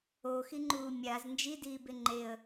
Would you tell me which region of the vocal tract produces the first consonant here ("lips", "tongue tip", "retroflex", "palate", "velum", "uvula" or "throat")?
velum